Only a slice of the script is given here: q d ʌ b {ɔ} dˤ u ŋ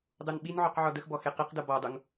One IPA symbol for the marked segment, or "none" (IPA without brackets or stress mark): ɔ